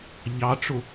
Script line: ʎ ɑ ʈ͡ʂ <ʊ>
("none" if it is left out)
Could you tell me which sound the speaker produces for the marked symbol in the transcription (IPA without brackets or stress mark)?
ʊ